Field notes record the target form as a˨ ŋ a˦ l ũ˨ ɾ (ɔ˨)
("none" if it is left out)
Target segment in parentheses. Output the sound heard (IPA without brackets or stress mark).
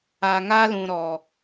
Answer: ɔ˨